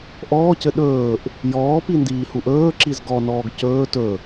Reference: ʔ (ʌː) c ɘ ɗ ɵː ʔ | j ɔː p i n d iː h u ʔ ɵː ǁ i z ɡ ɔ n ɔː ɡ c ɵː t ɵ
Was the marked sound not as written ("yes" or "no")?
yes